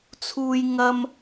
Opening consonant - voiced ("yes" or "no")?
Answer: no